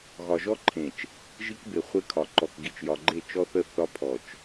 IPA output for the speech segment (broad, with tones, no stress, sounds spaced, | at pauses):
ɣ ɒ˨ ʒ ɔ˦ ǃʰ ẽ˨ t͡ʃ | ʒ i˦ k b e˨ χʷ e˦ kʰ ɒ˨ ǃ ɔ˨ k ɡ i˨ t͡ʃ j ɒ˨ ɡ͡ǃ e˦˨ t͡ʃ ɔ˦ θ ə˦ θ ɒ˦ pʰ ɔ˨ t͡ʃ